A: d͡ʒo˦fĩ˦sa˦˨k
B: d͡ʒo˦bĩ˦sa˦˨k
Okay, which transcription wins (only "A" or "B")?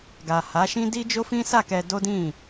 A